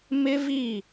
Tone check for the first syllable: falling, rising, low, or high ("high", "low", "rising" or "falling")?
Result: high